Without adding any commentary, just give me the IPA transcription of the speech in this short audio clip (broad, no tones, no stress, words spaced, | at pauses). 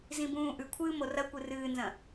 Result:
zĩbũːʔʉkʷʰɨː morɐkʷɨ rɨːnzɐ̃